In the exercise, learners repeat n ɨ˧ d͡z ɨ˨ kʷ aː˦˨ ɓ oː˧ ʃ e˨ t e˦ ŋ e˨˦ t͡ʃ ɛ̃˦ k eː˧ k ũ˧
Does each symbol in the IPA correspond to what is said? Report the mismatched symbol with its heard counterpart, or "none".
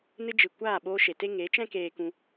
d͡z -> d͡ʒ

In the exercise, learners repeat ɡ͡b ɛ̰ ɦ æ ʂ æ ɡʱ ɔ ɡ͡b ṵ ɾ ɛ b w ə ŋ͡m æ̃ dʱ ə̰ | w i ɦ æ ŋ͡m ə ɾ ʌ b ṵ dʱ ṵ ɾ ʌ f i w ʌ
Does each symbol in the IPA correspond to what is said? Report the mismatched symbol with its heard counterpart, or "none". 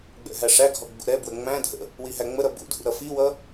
none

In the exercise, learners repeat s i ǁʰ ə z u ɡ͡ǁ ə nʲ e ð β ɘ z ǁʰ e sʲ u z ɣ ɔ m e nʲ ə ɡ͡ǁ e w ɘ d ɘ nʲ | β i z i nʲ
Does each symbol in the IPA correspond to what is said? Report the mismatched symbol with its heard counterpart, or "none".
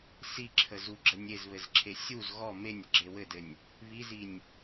ð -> z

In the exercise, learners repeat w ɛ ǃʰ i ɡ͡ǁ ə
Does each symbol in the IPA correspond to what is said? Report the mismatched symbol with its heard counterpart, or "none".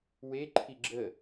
ɛ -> e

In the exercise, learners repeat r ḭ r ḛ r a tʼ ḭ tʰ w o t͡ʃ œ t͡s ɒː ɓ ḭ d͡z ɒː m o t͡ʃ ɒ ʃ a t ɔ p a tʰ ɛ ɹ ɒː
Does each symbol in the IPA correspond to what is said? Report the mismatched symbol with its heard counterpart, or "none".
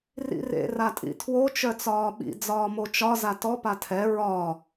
ʃ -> z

